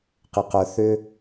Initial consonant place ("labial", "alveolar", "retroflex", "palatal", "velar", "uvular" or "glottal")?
uvular